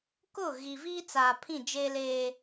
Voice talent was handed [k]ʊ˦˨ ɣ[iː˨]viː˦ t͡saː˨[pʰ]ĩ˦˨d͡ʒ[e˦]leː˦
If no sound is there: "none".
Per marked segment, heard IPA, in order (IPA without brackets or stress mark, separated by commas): k, i˨, pʰ, e˦